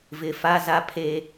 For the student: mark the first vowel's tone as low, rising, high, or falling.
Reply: low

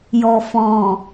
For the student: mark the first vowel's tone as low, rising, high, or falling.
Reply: low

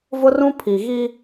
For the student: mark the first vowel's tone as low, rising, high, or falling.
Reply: high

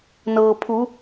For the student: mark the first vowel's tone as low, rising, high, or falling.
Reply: low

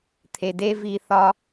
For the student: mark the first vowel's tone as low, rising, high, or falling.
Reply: low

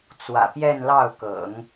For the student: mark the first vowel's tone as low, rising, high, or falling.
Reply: low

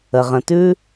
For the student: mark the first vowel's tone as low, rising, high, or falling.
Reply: low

